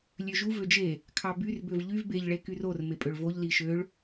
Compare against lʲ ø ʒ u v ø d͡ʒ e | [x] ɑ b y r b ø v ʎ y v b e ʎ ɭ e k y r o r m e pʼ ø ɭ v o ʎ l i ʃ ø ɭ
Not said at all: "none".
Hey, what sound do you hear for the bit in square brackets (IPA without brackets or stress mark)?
kʰ